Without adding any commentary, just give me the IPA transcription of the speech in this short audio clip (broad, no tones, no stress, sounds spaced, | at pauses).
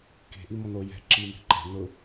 k e̤ ʔ i m ɔ n o j ɛ̤ ǁ i m e̤ ǃ ɛ̤ n ʊ